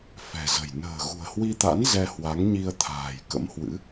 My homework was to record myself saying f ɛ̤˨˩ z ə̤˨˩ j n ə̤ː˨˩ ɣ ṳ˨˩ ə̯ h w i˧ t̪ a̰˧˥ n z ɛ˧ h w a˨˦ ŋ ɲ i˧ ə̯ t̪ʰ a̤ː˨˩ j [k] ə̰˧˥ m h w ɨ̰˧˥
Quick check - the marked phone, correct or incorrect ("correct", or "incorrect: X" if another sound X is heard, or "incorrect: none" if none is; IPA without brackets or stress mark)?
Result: correct